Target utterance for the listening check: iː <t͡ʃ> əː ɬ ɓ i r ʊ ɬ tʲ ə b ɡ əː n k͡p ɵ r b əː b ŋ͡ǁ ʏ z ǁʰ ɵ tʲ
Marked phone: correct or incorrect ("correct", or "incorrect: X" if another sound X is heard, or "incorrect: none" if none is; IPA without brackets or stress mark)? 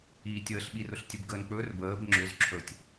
incorrect: tʲ